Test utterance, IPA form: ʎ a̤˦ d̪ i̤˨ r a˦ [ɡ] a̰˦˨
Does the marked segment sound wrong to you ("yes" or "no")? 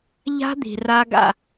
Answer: no